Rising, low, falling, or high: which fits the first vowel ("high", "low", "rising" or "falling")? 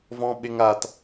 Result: high